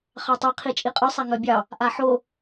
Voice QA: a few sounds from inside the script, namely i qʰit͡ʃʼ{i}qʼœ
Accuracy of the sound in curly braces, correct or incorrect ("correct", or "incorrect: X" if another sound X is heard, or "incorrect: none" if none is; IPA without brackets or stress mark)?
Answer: correct